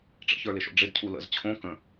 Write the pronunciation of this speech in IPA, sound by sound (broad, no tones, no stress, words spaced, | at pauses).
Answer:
ʈ͡ʂə̰çə˞lɪʃo̰ ɖ͡ʐɪdcʰu lə̰z t͡ɕʰõ kə̃